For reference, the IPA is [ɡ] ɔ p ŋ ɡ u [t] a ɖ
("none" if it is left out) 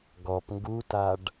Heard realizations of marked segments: ɡ, t

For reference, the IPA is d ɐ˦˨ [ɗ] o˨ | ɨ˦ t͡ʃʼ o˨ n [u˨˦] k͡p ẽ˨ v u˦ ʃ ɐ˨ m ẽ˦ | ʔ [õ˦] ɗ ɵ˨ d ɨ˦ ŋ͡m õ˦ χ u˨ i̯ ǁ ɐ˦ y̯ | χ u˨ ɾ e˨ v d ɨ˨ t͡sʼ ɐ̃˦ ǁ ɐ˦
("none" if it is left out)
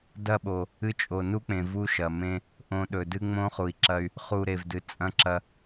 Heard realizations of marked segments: ɓ, u˦, õ˦

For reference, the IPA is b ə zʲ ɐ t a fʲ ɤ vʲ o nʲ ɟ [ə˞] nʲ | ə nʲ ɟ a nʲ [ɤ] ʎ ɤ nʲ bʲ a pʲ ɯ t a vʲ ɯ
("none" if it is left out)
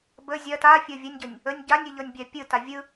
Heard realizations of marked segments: ɤ, ɯ

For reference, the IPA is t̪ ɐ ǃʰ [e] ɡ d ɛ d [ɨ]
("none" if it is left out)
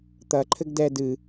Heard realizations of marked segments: ɘ, ɨ

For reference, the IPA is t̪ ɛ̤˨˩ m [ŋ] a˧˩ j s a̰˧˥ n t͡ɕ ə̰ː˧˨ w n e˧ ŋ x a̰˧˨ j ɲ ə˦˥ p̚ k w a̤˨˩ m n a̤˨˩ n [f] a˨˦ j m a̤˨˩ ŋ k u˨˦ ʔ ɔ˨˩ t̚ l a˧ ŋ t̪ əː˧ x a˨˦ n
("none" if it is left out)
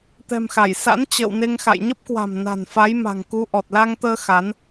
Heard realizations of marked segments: x, f

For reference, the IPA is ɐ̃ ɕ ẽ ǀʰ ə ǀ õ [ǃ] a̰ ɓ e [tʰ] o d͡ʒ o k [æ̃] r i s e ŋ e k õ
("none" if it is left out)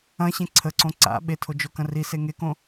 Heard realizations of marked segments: ǀ, tʰ, ɐ̃

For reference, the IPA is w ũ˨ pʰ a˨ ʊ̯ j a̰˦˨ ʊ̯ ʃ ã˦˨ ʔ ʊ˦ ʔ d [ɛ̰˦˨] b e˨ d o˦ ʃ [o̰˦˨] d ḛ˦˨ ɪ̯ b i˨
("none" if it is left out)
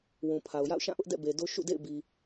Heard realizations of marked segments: ɛ̰˦˨, ṵ˦˨

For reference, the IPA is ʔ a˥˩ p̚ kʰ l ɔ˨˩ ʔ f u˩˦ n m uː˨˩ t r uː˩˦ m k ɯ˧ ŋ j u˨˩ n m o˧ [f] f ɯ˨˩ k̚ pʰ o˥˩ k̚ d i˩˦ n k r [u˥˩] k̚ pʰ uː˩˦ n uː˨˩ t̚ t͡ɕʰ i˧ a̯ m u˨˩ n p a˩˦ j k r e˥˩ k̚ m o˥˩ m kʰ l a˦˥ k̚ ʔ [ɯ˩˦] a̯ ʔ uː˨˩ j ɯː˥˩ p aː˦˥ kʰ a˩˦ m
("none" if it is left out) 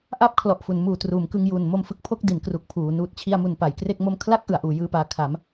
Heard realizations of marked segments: m, u˨˩, ɯ˩˦

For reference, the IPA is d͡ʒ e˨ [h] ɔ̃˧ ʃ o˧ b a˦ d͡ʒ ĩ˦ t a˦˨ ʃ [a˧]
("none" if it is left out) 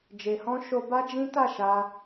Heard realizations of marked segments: h, a˧

